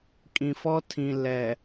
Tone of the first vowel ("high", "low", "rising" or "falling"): low